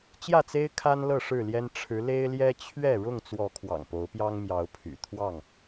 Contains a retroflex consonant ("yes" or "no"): yes